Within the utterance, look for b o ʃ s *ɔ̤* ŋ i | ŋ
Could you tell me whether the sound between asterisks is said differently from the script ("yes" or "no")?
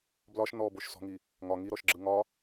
no